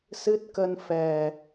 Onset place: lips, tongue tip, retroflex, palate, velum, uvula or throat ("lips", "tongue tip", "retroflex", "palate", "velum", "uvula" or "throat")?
tongue tip